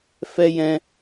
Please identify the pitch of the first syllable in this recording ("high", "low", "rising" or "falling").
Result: high